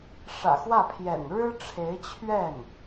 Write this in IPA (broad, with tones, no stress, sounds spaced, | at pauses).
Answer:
ʂ ä̰˨˩ x w ä˥˩ pʰ j ɛ̰˨˩ n ɻ ɻ̩˥ ʈ͡ʂʰ e˧˥ ɪ̯ t͡ɕʰ ɥ ɛ˥˩ n